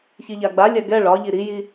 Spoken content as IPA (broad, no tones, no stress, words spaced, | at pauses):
çiʎaɡ͡balʲa ɡɛ ɭɒʎi ɾiji